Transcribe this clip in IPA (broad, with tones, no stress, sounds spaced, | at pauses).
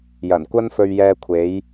j ɐ˨˩ n kʷ ɐ˥ n f ɵ˧ ɥ j ɛː˧ kʷʰ e˨˥ j